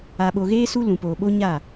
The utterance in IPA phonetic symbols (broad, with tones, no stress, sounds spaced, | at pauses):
a˨ ɓ o˨ ɣ eː˦ s u˦ l ũ˨ p oː˨ ɓ o˦ ɲ a˦˨